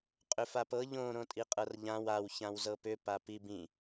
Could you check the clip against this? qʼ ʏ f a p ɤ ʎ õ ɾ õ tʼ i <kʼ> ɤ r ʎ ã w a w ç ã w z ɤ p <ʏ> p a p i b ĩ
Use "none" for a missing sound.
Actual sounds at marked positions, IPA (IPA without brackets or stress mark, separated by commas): qʼ, ʏ